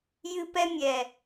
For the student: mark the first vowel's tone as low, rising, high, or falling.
high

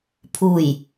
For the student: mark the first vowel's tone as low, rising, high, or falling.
low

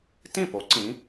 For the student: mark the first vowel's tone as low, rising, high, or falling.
falling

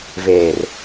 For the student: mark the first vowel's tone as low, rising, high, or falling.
low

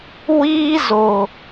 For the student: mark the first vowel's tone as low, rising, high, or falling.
high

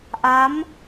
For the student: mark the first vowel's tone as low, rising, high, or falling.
rising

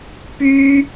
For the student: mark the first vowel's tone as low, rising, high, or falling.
high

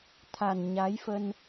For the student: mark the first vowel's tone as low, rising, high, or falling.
low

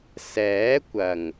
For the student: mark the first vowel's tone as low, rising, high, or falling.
rising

